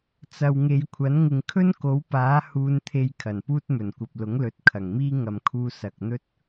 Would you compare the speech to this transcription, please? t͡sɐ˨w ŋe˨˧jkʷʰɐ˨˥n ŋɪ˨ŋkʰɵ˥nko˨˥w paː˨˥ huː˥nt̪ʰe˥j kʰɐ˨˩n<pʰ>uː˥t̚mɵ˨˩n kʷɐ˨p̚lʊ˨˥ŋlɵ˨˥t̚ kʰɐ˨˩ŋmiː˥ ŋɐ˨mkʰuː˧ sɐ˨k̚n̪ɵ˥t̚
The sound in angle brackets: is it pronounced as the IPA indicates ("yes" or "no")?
no